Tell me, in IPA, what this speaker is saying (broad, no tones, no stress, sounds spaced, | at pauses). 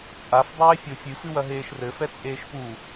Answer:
t͡sʼ a f dˤ eː fʲ o fʲ ɨ f ɨ w ɐ ɦ eː ʃ r ɘ f ɛ t͡sʼ eː ʃ p u